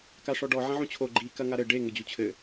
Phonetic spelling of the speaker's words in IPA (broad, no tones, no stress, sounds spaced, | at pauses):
k a ʂ ɔ ɖ ɔ ʕ ɐ̃ ʕ ũ t͡ɕʰ o ɡ͡ǃ i k ɐ ŋ a ɾ ɘ ɖ e ŋ ɘ d͡ʑ u t͡ɕʰ ɘ